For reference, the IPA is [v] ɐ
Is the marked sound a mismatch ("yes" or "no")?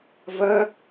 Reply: no